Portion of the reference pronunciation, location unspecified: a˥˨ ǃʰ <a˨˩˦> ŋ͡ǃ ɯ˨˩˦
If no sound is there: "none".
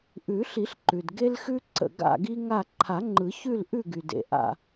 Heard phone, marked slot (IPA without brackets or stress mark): a˨˩˦